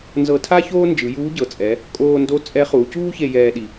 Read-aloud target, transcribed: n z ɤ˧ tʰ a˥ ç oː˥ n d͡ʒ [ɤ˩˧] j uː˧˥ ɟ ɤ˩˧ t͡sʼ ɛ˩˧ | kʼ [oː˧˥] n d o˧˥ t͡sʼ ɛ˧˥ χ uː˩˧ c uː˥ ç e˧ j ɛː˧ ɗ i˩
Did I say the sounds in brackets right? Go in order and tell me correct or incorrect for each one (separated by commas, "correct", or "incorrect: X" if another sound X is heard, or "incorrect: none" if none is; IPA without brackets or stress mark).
incorrect: ɯ˩˧, incorrect: oː˧